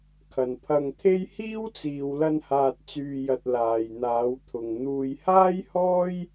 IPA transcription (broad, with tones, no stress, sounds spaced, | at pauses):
kʰ ɐ˨ n pʰ ɐ˧ ŋ t̪ʰ e˥ j h iː˥ w t͡s iː˨ w l ɐ˧ n h aː˨ t̚ t͡s yː˨ j ɐ˨ t̚ l aː˨ j n̪ aː˨˧ w t̪ʰ ʊ˨ ŋ n̪ uː˨ j h aː˥ j h ɔː˥ j